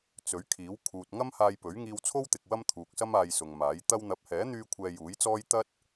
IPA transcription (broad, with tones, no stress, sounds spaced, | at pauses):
t͡s ɵ˨˥ ɥ kʰ iː˨˥ w kʰ uː˨ t̚ ŋ ɐ˥ m h aː˧ j p ɵ˨˥ ɥ ŋ iː˧ w t͡sʰ o˥ w t̪ ɪ˨ k̚ w ɐ˥ m t̪ʰ uː˨ k̚ s ɐ˥ m aː˧ j s ʊ˨ ŋ m aː˨˥ j t̪ ɐ˧ w n̪ ɐ˨˥ p̚ h ɛː˨˥ n̪ yː˧ kʷʰ ɛː˧ j uː˨˥ j t͡s ɔː˥ j t̪ ɐ˥ t̚